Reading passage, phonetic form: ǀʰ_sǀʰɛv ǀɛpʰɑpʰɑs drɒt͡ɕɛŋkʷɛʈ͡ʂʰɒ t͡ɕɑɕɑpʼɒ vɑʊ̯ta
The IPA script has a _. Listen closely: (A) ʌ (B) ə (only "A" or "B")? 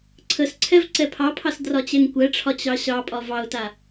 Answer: B